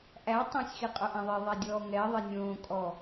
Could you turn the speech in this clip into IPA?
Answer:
ʔ æ tˤ ẽ sʲ x i qʼ o ʔ æ̃ ðˤ e ðˤ æ dʲ ɔː ŋ ɛ ðˤ ɛ nʲ õː kʼ ɔ

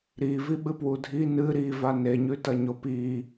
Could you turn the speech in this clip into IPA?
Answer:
ɾ i v i ɓ ɨ p w u dʱ i n ɨ ɾ i v a n e ɲ ʉ t ɐ ɲ o p i

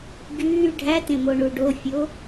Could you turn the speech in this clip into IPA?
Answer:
ɡ yː ɖʱ æ t ẽ m o ɳ u ɖ o fʲ o

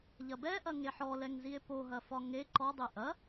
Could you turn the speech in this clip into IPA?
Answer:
ʎ ɐ b ɛ ʔ ɐ ŋ e ħ ɔ l ɛ ŋ z i e̯ p o ɦ ɐ f ɒ ŋ e ǃ ɔ dˤ e ʔ ɐ

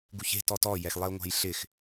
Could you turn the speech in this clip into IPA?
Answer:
ɡ u ç e̤ t ɔ t ɔ j ɛ x lˠ e o̯ ŋʷ a̤ j ɬ ɪ x

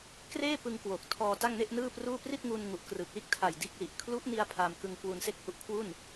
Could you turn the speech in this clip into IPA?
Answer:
k r eː˥˩ p ɯ˧ ŋ k w o˨˩ k̚ tʰ ɔː˧ t a˥˩ ŋ n e˥˩ ʔ n ɯː˥˩ p r uː˥˩ p r i˥˩ t̚ ŋ u˧ n ŋ u˨˩ ʔ k r ɯ˨˩ k̚ l iː˥˩ k̚ tʰ a˨˩ j d iː˦˥ k̚ l i˨˩ ʔ kʰ l u˦˥ ʔ n i˧ a̯ pʰ a˧ m k ɯ˧ ŋ k w u˧ n s e˥˩ k̚ h u˦˥ ʔ kʰ w u˥˩ n

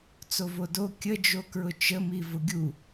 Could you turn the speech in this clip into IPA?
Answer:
t͡s o v o d o kʲ ə d͡ʒ o k ɹ ʊ t͡ʃ ə m i v ʊ ɡʲ u

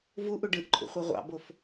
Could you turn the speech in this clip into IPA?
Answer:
v u ʔ u ɖ ɯ ʔ ǃʼ ṵ χʷ ɯ ʁʷ ɑ̰ b o f

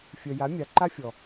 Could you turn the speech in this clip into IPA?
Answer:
fʲ œ˨ j a˨˦ mʲ a˨˦ ǃ a˦ fʲ ɔ˨

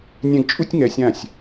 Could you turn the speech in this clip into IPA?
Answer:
nʲ ɛ̃˧ ɡ t͡ʃʼ u˥ tʲ ŋ ɛ˧ sʲ ã˥˩ sʲ

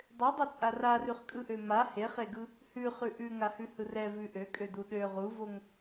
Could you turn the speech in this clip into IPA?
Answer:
dˤ ø dˤ ɛ t͡sʼ a r a r ʉ χ kʼ ɯ ʔ ø m a h e χ e ɡ ɯ | h ʉ χ ʉ ʔ ʉ ŋ a h ʉ h ɯ r ɛ v ʉ ʔ ø kʼ ø d u ɗ ø ʁ u v o ŋ

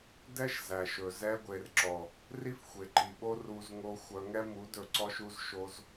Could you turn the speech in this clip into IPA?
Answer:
d ɛ˦ ʃ z æ˨ ʃ ɵ˨ z ɛ˧ ɡʷ e˨ r ǁ ɔ˨ | r i˦ f xʷ e˨ ǃ i˨ ɓ o˦ r u˧ z ŋ o˧ xʷ œ˧ ŋ ɛ˦ m u˨˦ d ɵ˨ ǀ ɔ˧ ʃ u˧ z ʃ o˧ z

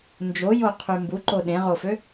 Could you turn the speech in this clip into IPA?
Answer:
n d͡ʒ o j o qʰ y m b u ǃ o ɗ ẽ ʁ o f ø

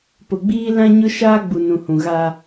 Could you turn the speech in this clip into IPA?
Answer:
p ʊ˨ ɡ͡b iː˦ l ã˦ ɲ ʊ˦ ʃ aː˦ ɡ͡b u˨ n ũ˨ h ũ˨ ɣ a˦

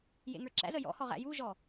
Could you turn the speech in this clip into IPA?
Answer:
j ḛ ŋ ə˞ ǁ æ̰ z ə j ɔ̰ h ɔ ʁ æ̰ j u ʒ ɔ

